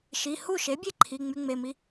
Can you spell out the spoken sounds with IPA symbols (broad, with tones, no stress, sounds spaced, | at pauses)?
ʃ i˩˧˩ h u˥˩ ʃ e˩˥ bʲ e˥˩ ǃʰ i˩˧˩ ŋ͡m y˧ ŋ͡m e˩˧˩ m i˧